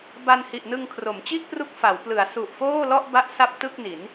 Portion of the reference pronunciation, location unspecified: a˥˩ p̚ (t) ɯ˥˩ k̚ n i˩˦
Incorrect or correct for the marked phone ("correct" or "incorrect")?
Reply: correct